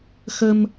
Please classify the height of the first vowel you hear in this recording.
mid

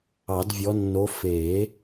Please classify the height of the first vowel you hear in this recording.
low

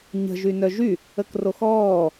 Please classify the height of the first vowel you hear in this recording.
mid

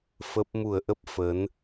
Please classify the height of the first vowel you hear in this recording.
mid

